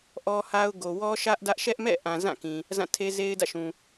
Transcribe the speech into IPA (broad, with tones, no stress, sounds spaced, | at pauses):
ʔ ɔ˦ h a˦ ʊ̯ ɡ o˨ w ɔ˦ ʃ ä˦ ʔ d ä˦ ʔ ʃ ɛ˦ ʔ m ɛ̰˦˨ ʔ ã˨ z ã˦˨ k ĩ˨ | z ã˦˨ tʰ e˦ z e˦ ɪ̯ d ä̰˦˨ ʃ ũ˨